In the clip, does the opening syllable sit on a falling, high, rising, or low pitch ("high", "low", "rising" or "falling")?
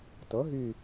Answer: rising